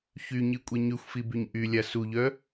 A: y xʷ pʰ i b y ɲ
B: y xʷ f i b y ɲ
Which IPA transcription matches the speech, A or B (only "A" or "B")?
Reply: B